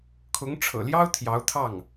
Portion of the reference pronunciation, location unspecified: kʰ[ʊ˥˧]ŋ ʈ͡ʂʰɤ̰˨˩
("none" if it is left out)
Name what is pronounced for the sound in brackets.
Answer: ʊ˧˥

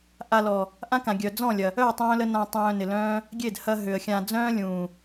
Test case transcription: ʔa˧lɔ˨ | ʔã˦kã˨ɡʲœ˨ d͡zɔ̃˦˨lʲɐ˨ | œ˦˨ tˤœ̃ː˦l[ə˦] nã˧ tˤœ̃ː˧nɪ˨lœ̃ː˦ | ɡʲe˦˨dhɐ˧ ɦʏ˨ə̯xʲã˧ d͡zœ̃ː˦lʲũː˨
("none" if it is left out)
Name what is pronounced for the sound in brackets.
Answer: ə˦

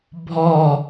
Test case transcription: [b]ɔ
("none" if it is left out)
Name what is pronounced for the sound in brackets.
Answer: bʱ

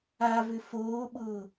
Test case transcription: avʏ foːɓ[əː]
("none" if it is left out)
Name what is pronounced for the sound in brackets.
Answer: ʊː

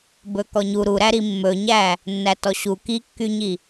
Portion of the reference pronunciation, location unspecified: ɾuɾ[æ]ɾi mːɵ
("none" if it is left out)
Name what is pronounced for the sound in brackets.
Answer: æ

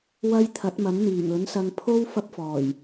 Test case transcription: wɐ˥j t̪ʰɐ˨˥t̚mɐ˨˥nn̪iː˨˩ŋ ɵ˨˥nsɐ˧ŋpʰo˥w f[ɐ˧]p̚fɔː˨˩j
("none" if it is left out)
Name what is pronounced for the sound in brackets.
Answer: ɐ˥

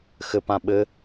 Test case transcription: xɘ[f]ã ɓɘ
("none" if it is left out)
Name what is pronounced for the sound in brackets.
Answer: p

